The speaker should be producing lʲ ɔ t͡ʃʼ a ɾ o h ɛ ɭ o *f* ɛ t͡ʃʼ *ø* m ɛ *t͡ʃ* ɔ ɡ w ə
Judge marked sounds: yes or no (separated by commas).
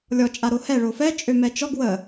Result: yes, yes, yes